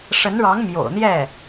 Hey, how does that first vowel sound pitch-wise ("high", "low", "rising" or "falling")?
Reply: rising